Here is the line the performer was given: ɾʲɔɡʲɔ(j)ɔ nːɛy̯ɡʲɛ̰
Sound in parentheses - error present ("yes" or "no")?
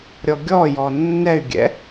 no